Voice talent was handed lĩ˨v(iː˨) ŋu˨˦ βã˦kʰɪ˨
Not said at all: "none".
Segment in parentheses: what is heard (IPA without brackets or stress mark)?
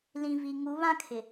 i˨